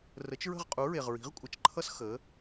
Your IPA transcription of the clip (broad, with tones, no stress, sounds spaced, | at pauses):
r ə˨˥ t͡ʃ ɹ ə̤˥˨ ʁ qʼ u˨˥ ɹ e˨ ʁ ɹ i̤˨˥ ʁ kʷʼ ə˨˥ t͡ʃ ǃʰ ʌ˥ s x ə˨˥